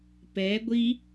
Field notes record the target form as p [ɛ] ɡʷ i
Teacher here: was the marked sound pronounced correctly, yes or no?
yes